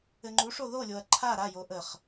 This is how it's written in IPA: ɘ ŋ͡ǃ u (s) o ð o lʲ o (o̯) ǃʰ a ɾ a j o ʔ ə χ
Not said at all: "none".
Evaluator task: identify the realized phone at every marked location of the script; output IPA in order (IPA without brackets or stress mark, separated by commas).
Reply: ʂ, ɐ̯